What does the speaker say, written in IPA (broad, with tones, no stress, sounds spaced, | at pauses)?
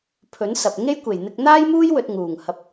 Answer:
pʰ ɵ˨˥ n s ɐ˨ p̚ ŋ e˥ j kʷ e˨˩ j n̪ ɪ˧ k̚ n̪ aː˥ j m uː˥ j w ɵ˧ t̚ ŋ uː˨˩ ŋ h ɐ˧ p̚